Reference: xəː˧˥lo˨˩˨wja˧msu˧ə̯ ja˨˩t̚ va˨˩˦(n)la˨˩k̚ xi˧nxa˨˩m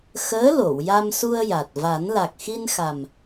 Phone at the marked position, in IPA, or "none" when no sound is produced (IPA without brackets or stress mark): n